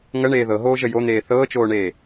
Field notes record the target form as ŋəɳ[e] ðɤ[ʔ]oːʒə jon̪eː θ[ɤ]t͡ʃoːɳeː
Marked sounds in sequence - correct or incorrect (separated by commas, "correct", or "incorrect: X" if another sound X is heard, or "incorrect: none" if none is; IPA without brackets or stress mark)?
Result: incorrect: eː, incorrect: ɦ, incorrect: ɤː